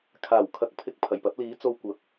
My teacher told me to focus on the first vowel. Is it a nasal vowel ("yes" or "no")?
no